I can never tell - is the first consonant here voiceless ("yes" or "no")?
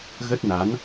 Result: no